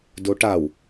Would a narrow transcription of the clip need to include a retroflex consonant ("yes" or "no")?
yes